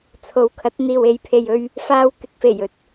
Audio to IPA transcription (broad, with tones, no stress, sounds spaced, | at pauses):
t͡sʰ o˨ w kʰ ɐ˨˥ t̚ n̪ iː˨ w e˨˧ j pʰ e˨ j ɵ˧ ɥ | f aː˧ w k ɪ˨ k̚ f e˨˩ j ɵ˨ t̚